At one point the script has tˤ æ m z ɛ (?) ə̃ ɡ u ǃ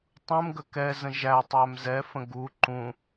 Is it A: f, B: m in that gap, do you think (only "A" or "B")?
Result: A